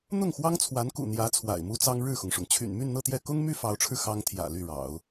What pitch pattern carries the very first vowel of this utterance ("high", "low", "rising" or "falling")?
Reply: falling